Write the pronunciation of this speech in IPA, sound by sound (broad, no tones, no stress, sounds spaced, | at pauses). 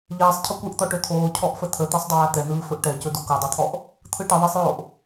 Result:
ʎ ɛː sˤ cʰ ə kʷ ɯ ʔ t̪ ɔ ʈ ɵ t̪ʰ oː cʰ ɔ ʔ f ə t̪ʰ ə t̪ ɛ sˤ dˤ ɵ j a t̪ ɛ n̪ ɯː f ɵ ʔ ʈ ɛ c ɵ d o k o dˤ o t̪ʰ ɔ ʔ | t̪ʰ ɯ ʈ ə ðˤ ɛ sˤ j oː ʔ